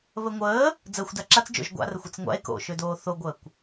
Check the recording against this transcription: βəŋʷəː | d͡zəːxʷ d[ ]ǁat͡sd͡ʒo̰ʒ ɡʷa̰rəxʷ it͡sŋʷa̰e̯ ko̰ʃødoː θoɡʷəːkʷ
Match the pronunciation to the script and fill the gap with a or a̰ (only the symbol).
a